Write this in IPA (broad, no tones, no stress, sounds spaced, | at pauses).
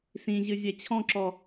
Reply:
s ĩ ʑ ɨ zʲ ɛ t͡ɕʰ ɔ̃ ǁ ɔ